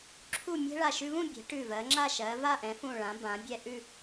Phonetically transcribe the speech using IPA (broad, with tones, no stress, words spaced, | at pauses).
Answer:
ǁʰu˥˧ mʲɛ̤˥ ɭa˧˩ʃʉ˧vũ˥˧ bʲɛ̤˩˧ ʈʉ˧˩vɜ˩˧ŋ͡ǁa˥˧ ʃɜ˩˧va˥˧ʔɛ̃˩˧fũ˧˩ ɭã˩˧bã˩˧ bʲɛ˧ʔʉ˥˧